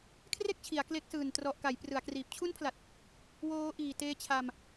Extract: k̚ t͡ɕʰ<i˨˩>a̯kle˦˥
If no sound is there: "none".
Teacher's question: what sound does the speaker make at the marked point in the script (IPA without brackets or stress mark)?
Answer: i˩˦